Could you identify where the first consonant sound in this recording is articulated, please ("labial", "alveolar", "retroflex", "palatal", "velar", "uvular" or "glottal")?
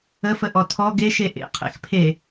labial